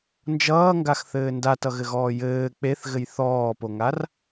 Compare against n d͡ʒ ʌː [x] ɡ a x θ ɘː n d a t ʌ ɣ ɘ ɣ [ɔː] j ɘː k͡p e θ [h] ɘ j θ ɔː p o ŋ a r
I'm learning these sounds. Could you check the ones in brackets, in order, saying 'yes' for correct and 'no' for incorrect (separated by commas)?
no, yes, no